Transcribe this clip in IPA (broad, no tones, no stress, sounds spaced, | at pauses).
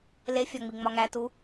l e fʲ ɒ ŋ͡m i ŋ͡m ɒ ŋ æ t u